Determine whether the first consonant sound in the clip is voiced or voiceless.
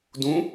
voiced